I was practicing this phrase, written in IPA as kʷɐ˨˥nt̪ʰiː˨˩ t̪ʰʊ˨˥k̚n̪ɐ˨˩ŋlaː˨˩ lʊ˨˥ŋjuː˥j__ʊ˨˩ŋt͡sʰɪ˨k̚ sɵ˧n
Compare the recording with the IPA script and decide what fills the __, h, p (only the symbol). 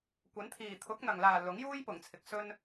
p